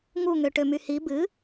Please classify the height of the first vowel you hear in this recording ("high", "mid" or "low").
high